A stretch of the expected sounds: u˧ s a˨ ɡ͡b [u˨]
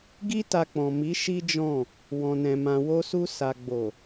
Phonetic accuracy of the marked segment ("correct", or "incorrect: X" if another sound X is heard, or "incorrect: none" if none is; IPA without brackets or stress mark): incorrect: o˨